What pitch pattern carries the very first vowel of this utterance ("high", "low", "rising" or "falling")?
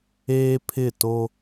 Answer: high